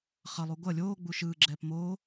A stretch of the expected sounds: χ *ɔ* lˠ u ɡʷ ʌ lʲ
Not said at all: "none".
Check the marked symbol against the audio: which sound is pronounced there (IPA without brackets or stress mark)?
ʌ